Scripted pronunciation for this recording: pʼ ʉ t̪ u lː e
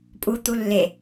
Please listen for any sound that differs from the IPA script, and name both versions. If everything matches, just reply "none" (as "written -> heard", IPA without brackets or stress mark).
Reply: ʉ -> u